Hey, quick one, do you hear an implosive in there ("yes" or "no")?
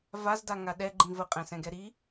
yes